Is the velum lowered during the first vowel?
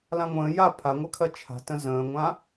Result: yes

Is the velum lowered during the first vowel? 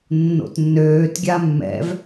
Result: no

